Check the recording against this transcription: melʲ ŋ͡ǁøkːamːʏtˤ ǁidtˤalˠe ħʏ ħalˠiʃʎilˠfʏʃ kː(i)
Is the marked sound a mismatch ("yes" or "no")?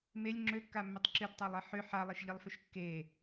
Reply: yes